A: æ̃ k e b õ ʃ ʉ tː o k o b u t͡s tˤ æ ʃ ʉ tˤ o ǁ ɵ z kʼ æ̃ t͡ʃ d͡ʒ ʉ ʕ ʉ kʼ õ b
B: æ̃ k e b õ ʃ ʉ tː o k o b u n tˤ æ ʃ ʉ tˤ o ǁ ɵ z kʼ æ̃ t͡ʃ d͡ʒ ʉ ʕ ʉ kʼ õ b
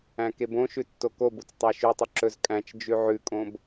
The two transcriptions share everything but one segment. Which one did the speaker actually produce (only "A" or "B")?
A